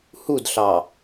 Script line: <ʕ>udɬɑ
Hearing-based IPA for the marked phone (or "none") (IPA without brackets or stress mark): h